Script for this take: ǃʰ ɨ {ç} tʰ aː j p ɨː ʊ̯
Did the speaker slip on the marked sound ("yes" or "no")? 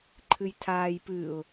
yes